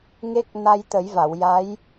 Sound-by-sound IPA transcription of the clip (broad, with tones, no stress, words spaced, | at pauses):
ŋe˦˥k̚ na˧jt̪ə˨˩˦jva˨˩˨w ja˧˥j